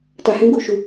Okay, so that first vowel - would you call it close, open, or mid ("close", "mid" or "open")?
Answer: open